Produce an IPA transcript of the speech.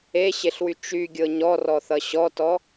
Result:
eɕeɬwy t͡ʃyɡʲɤ ɲɔrɔθʌ ɕɔtɔ

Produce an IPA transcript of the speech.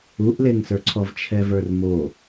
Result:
uʔleŋsə˞ǀʰɔv t͡ʃʰɛvə˞rmo

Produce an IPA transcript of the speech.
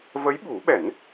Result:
və˧˥jɓu˨˩˦ɓɛ˨˩˦n

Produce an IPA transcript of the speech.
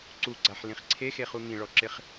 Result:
ǀuɡ͡ǀaħlĩχ ǀʰexeχu ŋĩɭɔǁɪχ

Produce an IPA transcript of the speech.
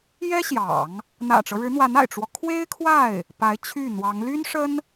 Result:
jɛ˥ɕjɑ̰˨˩˦ŋ | n̪ä̰˨˩ʈ͡ʂɤ˦ɻɻ̩˧˥n̪wa˧˥n a̰˨˩ɪ̯ʈ͡ʂwɔ˦ kʰwe˥ɪ̯kʰwa˥˩ɪ̯ | pa˧˥ɪ̯t͡ɕʰy˥˩n̪wɑ˧˥ŋ ly˥nʂə˥n

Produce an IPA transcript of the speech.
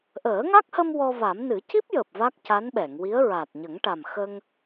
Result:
ʔəː˨˩˦ŋa˦˥k̚hə˧m wɔ˧va˨˩˦m nɨ˨˩˦ci˦˥p̚jəː˨˩p̚ va˦˥k̚ca˧˥nɓɛ˨˩˨ŋwi˧˥ə̯ ɹa˨˩t̚ɲə˨˩˦ŋʈa˨˩m xə˧ŋ

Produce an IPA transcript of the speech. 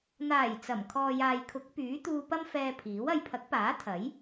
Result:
n̪aː˨˩j t͡sɐ˨˩m kʰɔː˨jaː˨jkʰʊ˨˥k̚ pyː˨˥ t̪uː˧pɐ˥mfɛː˧pʰiː˨˥w ɐ˨jpʰɐ˨˥k̚paː˨˥ t̪ʰɐ˨˥j

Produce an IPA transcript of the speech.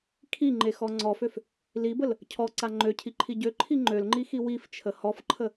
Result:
kʰiŋ͡ǃexɔ ŋ͡ǀɔføf | libəl | cʰɔǀa ŋ͡ǃøcʰiǃʰi ɟøǃʰi ŋ͡ǃølŋ͡ǃixi wift͡ʃʰə hɔfǃʰə

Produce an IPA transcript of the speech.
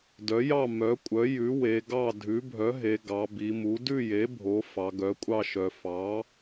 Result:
dœ˩˥jɑ˥˨ mœ˩˥kʷʼœ˩˥jʉ˩˥ we˩˧ɡɑ˥˨ dʱʉ˩˥bʱœ˩˥ɦe˩˧ ɡɑ˩˧bi˩˧mu˩˥ dʉ˥˨je˩˥ bʱo˩˧ fɑ˩˧ɡœ˩˥ kʷʼɑ˥˨ʃœ˩˧ fɑ˩˥

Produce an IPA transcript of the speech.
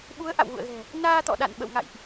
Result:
ɓu˨˦ə̯ ʔa̰˧˨wɣṵ˧˨ə̯ɣɛ̤˨˩ | naː˧t̪ɔ̰˧˨ɗa̰˧˨n ɓə̰˧˨wŋa̰˧˨jʔ

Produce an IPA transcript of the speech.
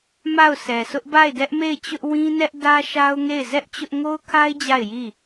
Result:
ma˦˨ʊ̯sɛ˨sʰʊ˦ʔ ba˦˨ɪ̯dɛ˦ʔme˦˨ɪ̯t͡ɕʊ˦ʔ wĩ˦nɛ˦ʔ dä˦ʃa˦ʊ̯ŋe˦˨ɪ̯ zɛ˦ʔ t͡ɕʊ˦ʔ ŋo˦ʊ̯kʰa˦ɪ̯ d͡ʑa˦˨ɪ̯ji˦˨

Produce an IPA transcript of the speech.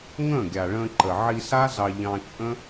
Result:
ŋə̃ː˦˨ɡʲa˨ɭə̃ː˧ǃə˨ ʕi˧sa˦zɑ˧ ʎɑ̃˧ t͡ʃʼə̃˦

